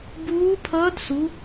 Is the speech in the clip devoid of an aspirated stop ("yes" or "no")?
no